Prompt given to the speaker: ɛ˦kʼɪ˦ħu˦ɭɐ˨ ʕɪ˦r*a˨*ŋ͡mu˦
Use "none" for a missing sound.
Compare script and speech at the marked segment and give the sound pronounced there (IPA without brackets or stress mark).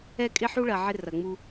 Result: ɐ˨